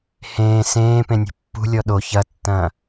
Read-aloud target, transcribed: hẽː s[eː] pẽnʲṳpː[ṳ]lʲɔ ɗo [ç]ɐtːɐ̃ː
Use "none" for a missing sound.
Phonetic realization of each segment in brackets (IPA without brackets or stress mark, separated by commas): ẽː, ṳ, ç